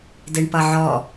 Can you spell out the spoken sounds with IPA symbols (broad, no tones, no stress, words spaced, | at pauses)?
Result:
deɳpʌʕɔ